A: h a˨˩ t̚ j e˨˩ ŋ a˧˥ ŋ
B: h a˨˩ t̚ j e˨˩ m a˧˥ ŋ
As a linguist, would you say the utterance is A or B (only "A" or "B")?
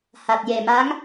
B